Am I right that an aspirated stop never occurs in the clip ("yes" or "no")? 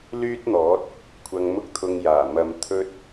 no